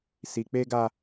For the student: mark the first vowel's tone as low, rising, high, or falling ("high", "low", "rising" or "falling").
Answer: low